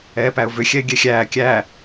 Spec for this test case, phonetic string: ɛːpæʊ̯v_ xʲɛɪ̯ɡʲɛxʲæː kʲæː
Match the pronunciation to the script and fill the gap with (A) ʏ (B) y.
A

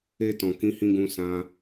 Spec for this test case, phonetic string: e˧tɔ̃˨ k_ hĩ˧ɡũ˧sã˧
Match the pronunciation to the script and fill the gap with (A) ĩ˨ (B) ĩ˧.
B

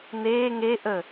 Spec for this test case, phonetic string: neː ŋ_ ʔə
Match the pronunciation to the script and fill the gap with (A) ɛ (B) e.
B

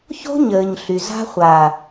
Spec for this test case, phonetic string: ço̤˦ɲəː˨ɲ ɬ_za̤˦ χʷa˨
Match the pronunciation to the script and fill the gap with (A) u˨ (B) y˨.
B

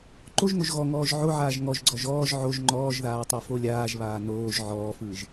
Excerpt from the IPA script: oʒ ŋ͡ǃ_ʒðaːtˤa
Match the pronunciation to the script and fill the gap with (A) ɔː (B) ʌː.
A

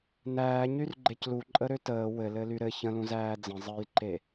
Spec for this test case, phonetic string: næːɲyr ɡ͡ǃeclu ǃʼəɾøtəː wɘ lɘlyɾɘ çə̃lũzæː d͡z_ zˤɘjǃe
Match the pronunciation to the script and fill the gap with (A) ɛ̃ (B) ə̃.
B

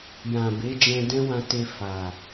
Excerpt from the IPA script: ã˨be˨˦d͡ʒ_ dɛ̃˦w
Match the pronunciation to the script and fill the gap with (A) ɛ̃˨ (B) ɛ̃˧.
B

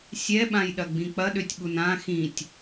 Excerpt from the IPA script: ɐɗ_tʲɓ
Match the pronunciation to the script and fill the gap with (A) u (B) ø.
B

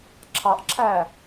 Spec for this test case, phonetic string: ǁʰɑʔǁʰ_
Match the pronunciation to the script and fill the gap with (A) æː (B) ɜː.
A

